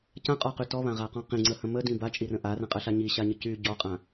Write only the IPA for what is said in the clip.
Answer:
c ã qʼ ɔ q y t ɔ β ã ʁ a q ɔ̃ q ĩ ŋ͡ǀ ə h ə̃ m ə d ĩ b a t͡ʃʼ i r ə̃ ʔ a r ə̃ qʼ ə ɬ a ɲ i ɕ a ɲ ə c y ɟ ɔ qʼ ã

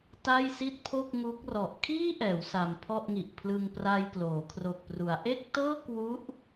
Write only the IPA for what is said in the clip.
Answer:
t a˥˩ j s i˥˩ t̚ pʰ o˥˩ k̚ ŋ u˦˥ k̚ r ɔ˨˩ ʔ kʰ iː˥˩ ʔ ɛː˩˦ w s a˧ m pʰ ɔ˥˩ ʔ ŋ i˨˩ ʔ pʰ l ɯ˧ ŋ p r a˧ j k l oː˩˦ kʰ r o˨˩ k̚ p r u˩˦ a̯ ʔ e˥˩ k̚ t ɤː˥˩ k w u˦˥ ʔ

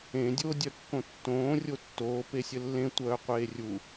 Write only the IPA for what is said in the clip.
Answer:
ẽ dʲ oː dʲ œ kː õ tː õː rʲ o tː oː p e sʲ ə lː ẽ tʷ œː qʷ eː rʲ u

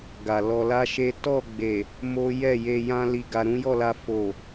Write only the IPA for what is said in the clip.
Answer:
ɡ a˨ l ɔ˧ l a˦ ʃ e˦ t ɔ˦˨ ɡ͡b e˨ | m o˦ j ɛ˦˨ j e˨ j ã˧ l i˨ ɡ a˨ ɾ ũ˨˦ j ɔ˦˨ l a˧ f o˨

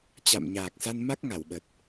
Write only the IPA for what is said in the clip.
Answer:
t͡ɕ a̰˧˨ m ɲ aː˨˩ k̚ s a˧ n m a˦˥ k̚ ŋ a˧˩ w ɓ ə˨˩ t̚

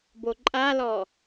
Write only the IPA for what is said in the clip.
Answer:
b o ǃʼ a l ɔ

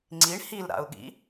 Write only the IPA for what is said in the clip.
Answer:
ŋ͡ǀ i ɳ h i l ɾ a̰ ʊ̯ ɠ ḭ

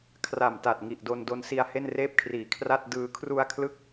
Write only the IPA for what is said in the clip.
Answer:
kʰ r a˨˩ m t a˨˩ t̚ ŋ i˨˩ ʔ d o˧ n d o˧ n s i˧ a̯ h e˥˩ n r eː˥˩ p̚ kʰ r iː˨˩ kʰ r a˥˩ t̚ d ɯː˧ kʰ r u˧ a̯ kʰ l ɯ˦˥ k̚

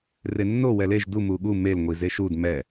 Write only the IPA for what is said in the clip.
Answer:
r e nː o w ɛ l e ʒ d u m u ɠ u m e l ŋʷ i z e ʃ u d m ɛ

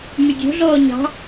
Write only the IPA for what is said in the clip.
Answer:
m y dʲ o̤ ɮ ɔː ɲ ɑ̤

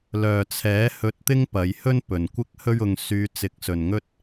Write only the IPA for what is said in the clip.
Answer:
l œː˨ t͡sʰ ɛː˨˥ h ɵ˧ t̚ t̪ ɪ˥ ŋ p ɐ˨˧ j h ɵ˥ n p ɵ˨ n kʷ ɪ˥ k̚ h ɵ˥ ɥ ʊ˧ ŋ s yː˧ t͡s ɪ˨˥ k̚ s ɵ˨ n ŋ ɵ˥ t̚

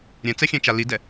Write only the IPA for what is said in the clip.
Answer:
ɾʲ ɛ̃ t͡s ɛ xʲ ɛ̃ t͡ʃ a l i d ɛ

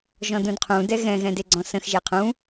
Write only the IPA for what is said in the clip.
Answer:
ʒ ɔ̃ d ũ d qʰ ũ d ɛ ɣ ɛ̃ ɣ ɛ̃ d e ɡ͡ǀ ɔ̃ s ə̃ x ʒ e qʰ ũ

